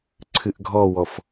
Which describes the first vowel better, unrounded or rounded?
unrounded